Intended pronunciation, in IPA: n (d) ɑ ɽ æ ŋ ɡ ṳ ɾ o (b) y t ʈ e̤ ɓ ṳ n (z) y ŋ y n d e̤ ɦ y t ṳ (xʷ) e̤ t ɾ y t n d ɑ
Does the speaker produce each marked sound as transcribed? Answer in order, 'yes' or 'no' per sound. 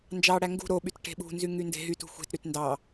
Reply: no, no, yes, yes

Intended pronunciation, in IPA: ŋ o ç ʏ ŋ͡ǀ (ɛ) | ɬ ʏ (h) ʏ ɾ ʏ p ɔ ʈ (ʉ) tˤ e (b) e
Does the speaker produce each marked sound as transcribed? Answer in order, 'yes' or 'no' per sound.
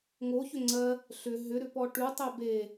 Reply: no, no, yes, yes

